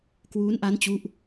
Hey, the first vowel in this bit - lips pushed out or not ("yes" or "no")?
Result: yes